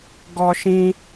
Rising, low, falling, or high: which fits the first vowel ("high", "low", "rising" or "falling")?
high